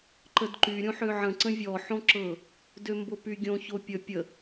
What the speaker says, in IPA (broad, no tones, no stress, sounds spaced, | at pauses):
ǃ ə d ǃ y ɾʲ õ ħ ø ʕ ə̃ ǀ ə̃ vʲ ɔ ħ õ ǁ ɤ | d ø m b o p y ɡʲ õ ç o pʲ ə pʲ ə